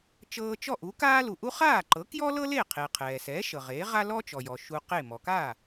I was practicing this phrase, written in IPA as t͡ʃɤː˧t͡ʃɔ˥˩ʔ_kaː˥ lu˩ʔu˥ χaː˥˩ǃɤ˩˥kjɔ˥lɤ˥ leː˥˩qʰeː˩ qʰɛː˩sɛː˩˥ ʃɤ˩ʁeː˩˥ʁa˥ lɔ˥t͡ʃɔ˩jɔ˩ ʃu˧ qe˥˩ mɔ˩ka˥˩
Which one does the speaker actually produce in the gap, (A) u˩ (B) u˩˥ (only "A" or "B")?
B